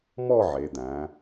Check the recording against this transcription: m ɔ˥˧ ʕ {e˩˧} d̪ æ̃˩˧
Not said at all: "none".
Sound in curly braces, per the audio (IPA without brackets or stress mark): e˩˧